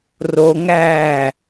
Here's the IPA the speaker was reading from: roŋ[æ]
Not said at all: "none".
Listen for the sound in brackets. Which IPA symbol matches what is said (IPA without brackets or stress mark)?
æː